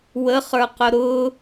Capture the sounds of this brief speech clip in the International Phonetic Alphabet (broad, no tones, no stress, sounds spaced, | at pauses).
w ə χ ə˞ q ʊ ɾ ʊ